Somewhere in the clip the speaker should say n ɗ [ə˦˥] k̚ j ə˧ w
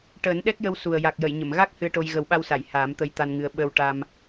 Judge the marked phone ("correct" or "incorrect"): incorrect